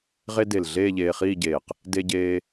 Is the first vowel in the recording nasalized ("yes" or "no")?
no